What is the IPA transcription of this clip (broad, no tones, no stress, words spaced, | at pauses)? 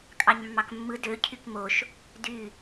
kʼɑɲmːɑkmːɯ dø cʰykmoʃ | dy